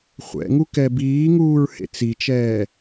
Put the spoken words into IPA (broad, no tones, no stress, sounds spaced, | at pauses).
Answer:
χʷ ɛ̰ ŋ u k ɛ b iː ŋ uː ɹ h ḛ t͡s i t͡ʃ ɛː